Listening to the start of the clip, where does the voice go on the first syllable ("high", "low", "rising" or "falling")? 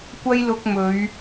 high